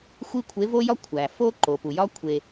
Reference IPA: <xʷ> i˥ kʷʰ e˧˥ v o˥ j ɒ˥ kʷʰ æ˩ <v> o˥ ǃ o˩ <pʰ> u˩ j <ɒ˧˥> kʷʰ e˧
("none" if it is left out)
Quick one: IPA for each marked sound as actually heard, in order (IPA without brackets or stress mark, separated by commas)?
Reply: xʷ, f, p, ɒ˥